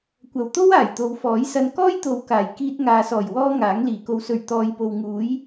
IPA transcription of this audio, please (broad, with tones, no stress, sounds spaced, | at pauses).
kʷ ɐ˨˩ w t̪ o˥ w aː˨˩ j t̪ o˨ w f ɔː˨˥ j s ɐ˧ n k ɔː˥ j t̪ o˨˧ w k aː˨˩ j k iː˧ t̚ ŋ aː˨ s ɔː˨˩ j w ɔː˥ ŋ aː˨˥ ŋ l iː˨˩ k o˨ w s ɵ˨˩ ɥ t̪ ɔː˨ j p o˨ w ŋ uː˨˥ j